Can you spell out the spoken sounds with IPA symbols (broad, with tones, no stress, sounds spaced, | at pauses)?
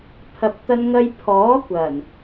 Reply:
pʰ ɐ˨ p̚ t̪ ɐ˧ n ŋ ɐ˧ j pʰ ɔː˨˥ kʷ ɐ˨˩ n